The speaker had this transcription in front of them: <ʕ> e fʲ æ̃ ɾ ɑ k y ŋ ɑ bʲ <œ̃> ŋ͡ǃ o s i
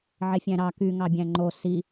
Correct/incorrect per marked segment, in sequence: correct, incorrect: æ̃

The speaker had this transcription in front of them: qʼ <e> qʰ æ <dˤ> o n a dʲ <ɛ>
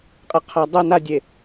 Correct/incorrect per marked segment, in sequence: correct, correct, incorrect: e

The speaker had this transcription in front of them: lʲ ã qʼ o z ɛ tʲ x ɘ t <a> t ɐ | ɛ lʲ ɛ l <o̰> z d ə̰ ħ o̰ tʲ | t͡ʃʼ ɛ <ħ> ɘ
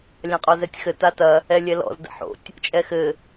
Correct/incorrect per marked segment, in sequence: correct, incorrect: ɔ̰, incorrect: x

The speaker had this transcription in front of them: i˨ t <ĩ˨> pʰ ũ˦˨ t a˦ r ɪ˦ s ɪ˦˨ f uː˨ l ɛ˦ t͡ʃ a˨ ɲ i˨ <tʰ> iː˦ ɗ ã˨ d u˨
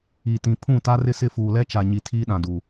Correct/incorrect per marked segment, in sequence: correct, correct

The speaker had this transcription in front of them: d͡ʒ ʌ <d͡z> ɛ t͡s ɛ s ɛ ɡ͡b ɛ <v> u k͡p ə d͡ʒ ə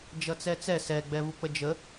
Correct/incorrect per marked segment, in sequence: incorrect: t͡s, correct

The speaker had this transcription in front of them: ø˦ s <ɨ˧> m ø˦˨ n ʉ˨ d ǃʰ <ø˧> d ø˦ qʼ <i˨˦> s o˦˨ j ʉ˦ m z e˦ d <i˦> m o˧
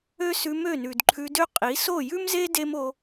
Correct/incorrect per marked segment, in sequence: incorrect: ʉ˧, incorrect: ʉ˧, correct, incorrect: e˦

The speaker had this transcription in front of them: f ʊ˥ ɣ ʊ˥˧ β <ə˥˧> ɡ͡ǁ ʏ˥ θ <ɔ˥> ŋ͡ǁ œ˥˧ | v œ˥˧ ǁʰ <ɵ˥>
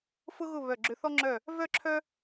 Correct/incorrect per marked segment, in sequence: incorrect: œ˥˧, correct, incorrect: œ˥

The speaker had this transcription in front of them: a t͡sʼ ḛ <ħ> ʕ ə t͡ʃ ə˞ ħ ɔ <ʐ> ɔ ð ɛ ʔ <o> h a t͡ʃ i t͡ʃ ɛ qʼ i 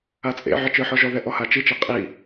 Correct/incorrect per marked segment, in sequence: incorrect: none, incorrect: ʒ, incorrect: ɔ

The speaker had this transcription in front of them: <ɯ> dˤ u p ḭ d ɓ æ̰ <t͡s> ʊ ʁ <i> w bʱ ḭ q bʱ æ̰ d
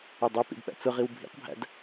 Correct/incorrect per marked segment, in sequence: incorrect: ʊ, correct, correct

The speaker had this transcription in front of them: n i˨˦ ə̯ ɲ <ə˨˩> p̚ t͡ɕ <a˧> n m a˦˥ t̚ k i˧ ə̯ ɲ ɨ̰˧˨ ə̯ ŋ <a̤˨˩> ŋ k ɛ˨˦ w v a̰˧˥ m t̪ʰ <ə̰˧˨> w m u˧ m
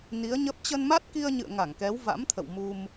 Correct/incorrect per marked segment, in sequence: incorrect: ə˦˥, incorrect: ə˧, incorrect: a˧˩, correct

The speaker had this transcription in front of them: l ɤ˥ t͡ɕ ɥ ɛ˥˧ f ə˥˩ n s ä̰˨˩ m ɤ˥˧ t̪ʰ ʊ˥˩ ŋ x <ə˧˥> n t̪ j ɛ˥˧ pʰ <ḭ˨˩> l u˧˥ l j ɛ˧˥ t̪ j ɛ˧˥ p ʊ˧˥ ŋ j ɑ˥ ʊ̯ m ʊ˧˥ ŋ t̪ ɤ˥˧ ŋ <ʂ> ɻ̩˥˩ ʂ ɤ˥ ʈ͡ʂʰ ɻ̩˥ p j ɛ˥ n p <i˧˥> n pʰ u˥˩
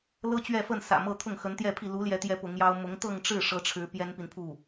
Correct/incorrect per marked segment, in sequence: correct, incorrect: i˥˩, incorrect: ʈ͡ʂ, incorrect: i˨

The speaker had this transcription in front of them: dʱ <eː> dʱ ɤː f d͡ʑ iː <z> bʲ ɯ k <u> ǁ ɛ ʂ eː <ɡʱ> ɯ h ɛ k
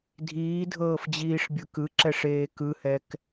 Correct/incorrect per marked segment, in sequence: incorrect: iː, incorrect: ʂ, incorrect: ɯ, incorrect: k

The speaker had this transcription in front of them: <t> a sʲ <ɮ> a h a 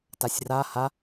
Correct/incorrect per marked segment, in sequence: correct, incorrect: r

